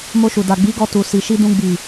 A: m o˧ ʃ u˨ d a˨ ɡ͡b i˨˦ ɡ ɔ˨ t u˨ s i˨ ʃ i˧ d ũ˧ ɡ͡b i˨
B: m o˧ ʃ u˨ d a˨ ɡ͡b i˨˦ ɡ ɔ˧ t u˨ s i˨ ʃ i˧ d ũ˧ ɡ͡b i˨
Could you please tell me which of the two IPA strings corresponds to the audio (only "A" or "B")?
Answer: B